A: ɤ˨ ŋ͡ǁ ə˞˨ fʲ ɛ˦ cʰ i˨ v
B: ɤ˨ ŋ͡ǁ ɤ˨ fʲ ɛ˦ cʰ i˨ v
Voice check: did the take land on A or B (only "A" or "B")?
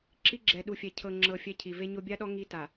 B